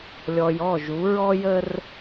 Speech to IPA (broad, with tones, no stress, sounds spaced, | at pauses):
lʲ ɔ˨ j ɔ˦˨ ʒ u˨˦ ɹ ɔ˦ j ə˦ r